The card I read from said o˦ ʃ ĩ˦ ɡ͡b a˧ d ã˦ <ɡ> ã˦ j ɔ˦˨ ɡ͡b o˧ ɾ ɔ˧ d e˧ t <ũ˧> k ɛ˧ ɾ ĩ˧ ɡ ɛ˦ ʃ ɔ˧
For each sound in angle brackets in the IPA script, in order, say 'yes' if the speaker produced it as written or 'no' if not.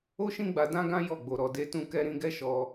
yes, yes

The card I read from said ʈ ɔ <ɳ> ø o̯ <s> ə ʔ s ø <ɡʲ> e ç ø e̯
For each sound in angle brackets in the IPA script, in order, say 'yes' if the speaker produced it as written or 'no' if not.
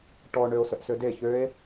yes, yes, no

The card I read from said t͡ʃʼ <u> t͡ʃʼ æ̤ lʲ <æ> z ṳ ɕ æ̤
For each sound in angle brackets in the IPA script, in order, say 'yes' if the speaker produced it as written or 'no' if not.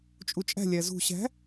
yes, yes

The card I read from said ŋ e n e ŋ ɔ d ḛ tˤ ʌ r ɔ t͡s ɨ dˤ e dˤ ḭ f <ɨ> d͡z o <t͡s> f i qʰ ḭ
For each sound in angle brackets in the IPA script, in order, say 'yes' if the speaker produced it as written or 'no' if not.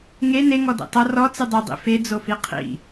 no, no

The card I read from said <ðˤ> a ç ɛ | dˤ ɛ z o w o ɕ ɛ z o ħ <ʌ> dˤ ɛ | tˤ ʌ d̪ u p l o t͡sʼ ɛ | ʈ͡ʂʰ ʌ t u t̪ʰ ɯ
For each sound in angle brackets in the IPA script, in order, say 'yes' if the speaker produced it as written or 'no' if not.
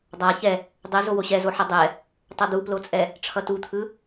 no, yes

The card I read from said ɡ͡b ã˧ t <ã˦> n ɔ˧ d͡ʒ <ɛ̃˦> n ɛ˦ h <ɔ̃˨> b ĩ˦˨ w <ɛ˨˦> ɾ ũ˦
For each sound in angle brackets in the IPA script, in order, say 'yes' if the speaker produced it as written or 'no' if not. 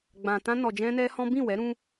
yes, yes, no, yes

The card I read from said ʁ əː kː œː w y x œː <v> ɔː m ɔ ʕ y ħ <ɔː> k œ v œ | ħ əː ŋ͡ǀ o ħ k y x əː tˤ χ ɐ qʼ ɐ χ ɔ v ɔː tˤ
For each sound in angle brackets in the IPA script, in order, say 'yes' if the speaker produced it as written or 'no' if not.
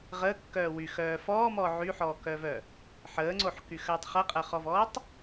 no, yes

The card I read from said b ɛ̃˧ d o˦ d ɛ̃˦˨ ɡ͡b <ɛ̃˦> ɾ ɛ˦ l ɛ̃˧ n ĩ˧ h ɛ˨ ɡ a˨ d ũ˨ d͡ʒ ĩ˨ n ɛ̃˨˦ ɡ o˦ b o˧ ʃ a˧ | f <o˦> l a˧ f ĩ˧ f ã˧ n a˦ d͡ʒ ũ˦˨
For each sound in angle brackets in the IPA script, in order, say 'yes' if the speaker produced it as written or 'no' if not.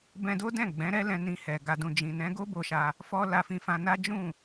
no, no

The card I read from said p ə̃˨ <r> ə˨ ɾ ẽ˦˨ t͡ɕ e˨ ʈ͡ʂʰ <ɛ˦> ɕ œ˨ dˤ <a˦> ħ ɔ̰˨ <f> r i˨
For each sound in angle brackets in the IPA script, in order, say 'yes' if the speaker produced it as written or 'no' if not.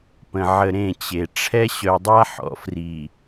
no, yes, yes, yes

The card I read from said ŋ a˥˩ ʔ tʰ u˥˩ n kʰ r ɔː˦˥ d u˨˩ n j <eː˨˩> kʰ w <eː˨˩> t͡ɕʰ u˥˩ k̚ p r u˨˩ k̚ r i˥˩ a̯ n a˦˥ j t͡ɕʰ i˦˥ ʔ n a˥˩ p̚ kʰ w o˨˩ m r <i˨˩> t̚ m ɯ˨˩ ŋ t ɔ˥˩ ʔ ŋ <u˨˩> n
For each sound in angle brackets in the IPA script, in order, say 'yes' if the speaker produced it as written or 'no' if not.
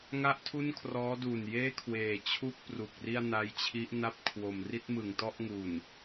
no, yes, no, yes

